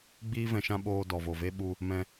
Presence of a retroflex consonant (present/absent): absent